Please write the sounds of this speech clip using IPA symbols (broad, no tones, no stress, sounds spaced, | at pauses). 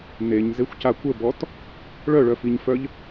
n e ɲ z e xʷ c a kʷ ə b ɔ t | ɭ œ ɭ œ f i ɲ f œ ʎ